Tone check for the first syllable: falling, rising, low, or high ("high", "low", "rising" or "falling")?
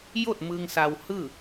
falling